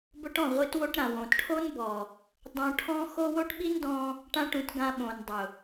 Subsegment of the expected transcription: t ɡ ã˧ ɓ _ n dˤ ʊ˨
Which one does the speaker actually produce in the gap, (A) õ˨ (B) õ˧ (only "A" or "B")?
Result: A